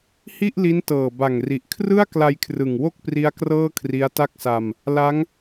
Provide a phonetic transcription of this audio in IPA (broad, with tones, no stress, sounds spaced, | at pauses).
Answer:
h i˥˩ ʔ l i˦˥ n t ɤː˨˩ b a˨˩ ŋ r i˨˩ ʔ kʰ r ɯ˥˩ a̯ k l a˧ j kʰ r ɯ˨˩ ŋ w o˥˩ k̚ p r i˦˥ a̯ k r ɤː˥˩ kʰ r i˦˥ a̯ t a˥˩ k̚ s a˧ m | l a˦˥ ŋ